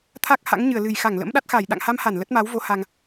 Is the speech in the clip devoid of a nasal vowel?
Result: yes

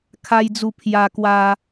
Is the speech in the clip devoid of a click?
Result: yes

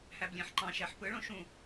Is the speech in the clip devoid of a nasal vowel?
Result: no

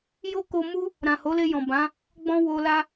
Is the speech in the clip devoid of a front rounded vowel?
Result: yes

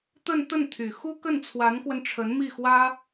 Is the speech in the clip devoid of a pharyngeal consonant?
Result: yes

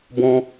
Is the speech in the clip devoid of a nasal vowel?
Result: no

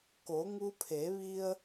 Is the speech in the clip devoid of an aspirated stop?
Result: no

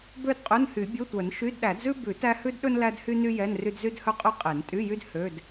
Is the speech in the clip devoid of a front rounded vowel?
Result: no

